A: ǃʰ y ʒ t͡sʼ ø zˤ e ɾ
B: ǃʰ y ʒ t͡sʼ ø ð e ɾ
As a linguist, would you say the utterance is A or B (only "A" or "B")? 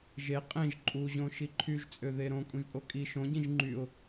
B